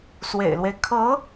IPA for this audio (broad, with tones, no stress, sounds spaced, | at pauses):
s w ḛ˨˩ ɪ̯ l w e˦ ɪ̯ kʰ ɤ˧˥